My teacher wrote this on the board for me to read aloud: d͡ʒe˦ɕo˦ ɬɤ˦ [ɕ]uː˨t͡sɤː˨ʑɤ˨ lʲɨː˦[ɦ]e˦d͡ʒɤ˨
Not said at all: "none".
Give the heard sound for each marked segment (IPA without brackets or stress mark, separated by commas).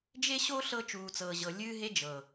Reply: t͡ʃ, ɦ